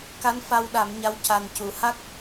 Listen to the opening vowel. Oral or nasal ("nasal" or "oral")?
oral